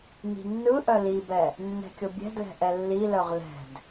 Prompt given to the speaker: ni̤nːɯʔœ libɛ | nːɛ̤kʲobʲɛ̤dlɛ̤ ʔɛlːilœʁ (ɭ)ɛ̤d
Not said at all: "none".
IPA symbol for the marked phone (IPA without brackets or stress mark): l